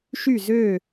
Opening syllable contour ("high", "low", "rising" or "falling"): falling